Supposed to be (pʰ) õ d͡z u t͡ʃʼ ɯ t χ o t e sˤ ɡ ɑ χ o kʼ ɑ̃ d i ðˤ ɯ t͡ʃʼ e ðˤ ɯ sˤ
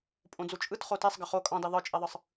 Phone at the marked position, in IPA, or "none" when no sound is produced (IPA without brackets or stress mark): pʼ